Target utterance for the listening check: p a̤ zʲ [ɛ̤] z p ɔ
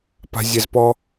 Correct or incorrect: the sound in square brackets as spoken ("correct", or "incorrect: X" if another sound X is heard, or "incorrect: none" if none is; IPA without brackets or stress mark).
incorrect: ɛ